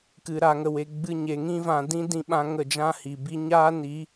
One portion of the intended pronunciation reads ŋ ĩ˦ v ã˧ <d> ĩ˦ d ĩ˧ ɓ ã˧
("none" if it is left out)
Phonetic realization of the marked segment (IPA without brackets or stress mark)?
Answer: d